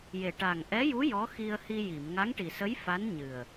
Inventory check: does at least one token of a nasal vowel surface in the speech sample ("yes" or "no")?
no